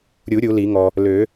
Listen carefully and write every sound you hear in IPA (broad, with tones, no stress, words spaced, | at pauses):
ɾʲu˨˩˦ ɾʲu˨˩˦li˨˩˦ŋɔ˨ | lø˨˩˦